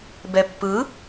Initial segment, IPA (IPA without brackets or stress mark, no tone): b